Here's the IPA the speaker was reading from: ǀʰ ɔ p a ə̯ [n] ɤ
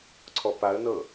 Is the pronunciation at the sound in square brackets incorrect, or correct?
correct